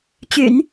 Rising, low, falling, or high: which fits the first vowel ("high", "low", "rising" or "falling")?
low